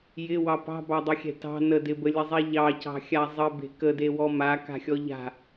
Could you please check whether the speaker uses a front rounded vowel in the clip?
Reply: no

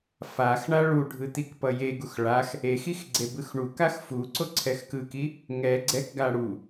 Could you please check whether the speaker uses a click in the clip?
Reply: yes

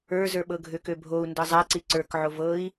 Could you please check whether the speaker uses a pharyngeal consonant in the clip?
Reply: yes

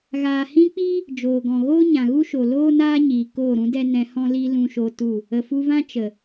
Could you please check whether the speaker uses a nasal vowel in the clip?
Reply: yes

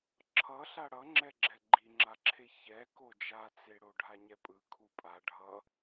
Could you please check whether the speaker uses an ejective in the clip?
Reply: yes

